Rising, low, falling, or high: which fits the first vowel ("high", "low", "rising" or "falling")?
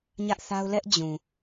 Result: high